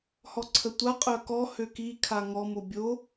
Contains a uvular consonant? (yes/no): yes